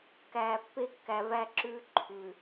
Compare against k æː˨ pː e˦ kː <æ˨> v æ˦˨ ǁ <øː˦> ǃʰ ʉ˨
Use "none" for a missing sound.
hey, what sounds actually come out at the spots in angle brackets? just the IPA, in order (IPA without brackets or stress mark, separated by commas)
æ˨, ʉː˦